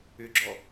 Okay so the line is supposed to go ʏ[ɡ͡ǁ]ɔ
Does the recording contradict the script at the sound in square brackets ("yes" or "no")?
no